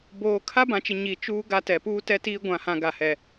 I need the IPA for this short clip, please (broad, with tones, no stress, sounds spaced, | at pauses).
b oː˨ kʰ a˦ b ã˨ t͡ʃ ɪ˨ ɲ i˨ t͡ʃ uː˦ ɡ a˦ t ɛ˨ p uː˦ t ɛ˦ t iː˦ ɡʷ ã˨ h ã˨ ɡ a˨ h ɛ˨